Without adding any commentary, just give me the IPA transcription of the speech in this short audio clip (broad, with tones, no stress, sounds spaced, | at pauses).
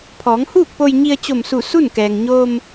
pʰ ɔː˩˧ ŋ h uː˥˨ k̚ p o˧ j ɲ i˧ ə̯ t͡ɕ o˧˩ m s u˧˩ s u˥˨ n k ɛː˩ ŋ ɲ oː˧ m